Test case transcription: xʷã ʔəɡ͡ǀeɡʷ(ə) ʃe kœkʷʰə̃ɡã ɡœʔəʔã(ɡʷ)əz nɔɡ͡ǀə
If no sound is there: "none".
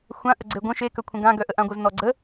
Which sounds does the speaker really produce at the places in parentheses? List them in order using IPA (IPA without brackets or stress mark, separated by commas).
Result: ə̃, ɡʷ